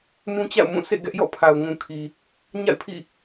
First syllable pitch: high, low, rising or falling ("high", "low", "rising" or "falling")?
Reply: high